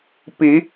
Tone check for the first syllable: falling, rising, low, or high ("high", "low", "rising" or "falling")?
rising